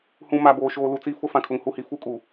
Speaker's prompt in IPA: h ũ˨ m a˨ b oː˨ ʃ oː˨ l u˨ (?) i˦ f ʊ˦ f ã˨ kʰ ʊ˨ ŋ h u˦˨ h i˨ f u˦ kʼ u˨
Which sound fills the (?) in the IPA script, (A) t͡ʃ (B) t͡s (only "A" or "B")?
B